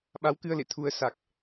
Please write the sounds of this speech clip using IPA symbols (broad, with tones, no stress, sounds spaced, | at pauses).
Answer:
ɓ a˨˦ w k ɨ˧ ə̯ l ḛ˧˨ t̪ʰ u˧ ə̯ s a˨˩ k̚